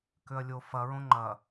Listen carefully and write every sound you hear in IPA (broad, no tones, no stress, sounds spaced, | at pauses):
k ʏ ɐ̯ lʲ o f ɐ ɹ õ ŋ͡ǃ ɐ